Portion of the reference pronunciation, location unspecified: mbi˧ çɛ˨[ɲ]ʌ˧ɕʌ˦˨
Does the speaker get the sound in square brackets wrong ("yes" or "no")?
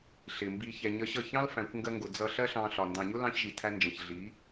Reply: no